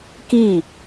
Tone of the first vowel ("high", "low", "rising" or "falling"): falling